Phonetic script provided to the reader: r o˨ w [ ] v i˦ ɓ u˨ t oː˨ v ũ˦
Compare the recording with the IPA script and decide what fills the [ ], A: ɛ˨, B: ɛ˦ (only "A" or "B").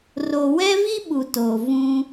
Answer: B